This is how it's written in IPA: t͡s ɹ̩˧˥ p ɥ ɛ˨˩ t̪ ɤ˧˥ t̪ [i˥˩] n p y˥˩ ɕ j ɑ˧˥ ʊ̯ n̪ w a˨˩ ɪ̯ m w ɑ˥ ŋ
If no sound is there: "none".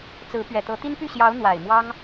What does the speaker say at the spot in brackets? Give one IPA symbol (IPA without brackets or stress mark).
i˥